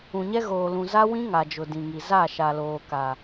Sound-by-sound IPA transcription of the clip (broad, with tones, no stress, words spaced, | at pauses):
ũ˨ɲɛ˦ ɣoː˨lũ˨ za˦wĩ˦ ŋa˨d͡ʒʊ˨ dĩ˨ŋi˨ za˦˨ ʃa˨loː˨ka˨